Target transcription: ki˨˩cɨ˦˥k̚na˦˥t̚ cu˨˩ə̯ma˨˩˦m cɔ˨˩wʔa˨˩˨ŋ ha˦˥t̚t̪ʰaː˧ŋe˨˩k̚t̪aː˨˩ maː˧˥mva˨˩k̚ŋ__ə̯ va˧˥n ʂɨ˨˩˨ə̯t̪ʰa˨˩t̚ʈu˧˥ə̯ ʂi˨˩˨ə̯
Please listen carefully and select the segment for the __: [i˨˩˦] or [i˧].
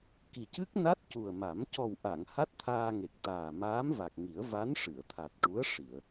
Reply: i˨˩˦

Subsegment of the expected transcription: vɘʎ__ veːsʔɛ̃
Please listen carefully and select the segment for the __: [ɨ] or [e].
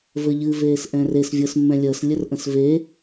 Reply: ɨ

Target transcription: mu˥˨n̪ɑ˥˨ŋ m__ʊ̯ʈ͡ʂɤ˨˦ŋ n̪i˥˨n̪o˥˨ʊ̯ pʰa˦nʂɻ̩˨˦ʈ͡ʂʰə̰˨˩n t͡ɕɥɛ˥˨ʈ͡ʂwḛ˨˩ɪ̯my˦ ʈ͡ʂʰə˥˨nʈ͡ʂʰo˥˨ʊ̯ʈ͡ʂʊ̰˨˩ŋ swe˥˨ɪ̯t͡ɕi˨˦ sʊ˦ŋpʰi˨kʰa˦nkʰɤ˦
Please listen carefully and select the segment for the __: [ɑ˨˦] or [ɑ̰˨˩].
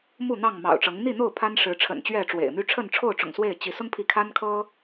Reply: ɑ̰˨˩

